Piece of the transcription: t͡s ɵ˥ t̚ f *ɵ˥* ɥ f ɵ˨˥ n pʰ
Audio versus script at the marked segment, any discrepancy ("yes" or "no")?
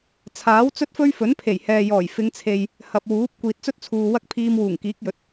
no